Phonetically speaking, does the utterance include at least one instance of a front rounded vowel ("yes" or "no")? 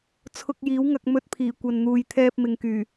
yes